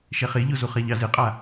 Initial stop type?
ejective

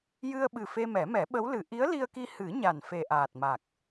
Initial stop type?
implosive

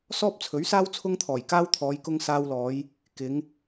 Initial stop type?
plain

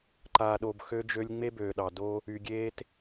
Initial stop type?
click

